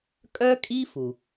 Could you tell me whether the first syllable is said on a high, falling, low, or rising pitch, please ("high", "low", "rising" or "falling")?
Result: high